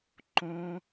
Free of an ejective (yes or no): yes